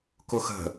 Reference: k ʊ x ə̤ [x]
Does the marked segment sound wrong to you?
yes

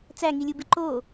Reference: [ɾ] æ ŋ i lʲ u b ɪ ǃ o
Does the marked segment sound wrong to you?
yes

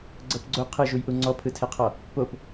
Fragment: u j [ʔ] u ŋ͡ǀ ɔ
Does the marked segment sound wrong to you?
no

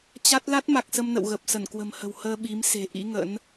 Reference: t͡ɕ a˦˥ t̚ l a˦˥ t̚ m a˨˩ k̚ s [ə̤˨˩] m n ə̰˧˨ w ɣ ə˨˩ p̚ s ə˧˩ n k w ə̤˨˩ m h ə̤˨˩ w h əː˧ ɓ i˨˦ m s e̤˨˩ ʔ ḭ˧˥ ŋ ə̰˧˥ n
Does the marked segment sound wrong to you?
yes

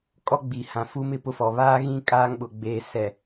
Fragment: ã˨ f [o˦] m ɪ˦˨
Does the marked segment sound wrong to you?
yes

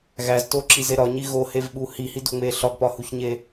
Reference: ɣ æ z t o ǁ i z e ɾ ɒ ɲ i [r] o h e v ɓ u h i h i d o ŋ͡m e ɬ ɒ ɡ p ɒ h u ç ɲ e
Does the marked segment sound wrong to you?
yes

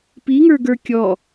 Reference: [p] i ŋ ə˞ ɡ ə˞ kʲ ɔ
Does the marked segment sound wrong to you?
no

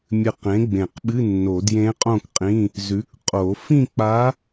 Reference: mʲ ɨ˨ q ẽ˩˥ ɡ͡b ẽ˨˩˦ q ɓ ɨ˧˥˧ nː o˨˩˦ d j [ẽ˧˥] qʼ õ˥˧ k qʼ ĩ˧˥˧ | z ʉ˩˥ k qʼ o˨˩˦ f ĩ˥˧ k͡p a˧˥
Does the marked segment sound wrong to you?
no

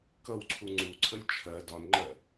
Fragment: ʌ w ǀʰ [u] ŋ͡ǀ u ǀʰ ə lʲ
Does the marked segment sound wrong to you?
no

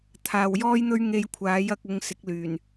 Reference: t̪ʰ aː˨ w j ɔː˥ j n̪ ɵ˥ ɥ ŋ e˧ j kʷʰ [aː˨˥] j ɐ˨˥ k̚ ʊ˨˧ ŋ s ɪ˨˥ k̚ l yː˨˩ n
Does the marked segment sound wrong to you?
no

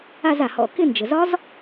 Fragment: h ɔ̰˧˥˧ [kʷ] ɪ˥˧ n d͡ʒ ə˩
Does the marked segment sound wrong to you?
yes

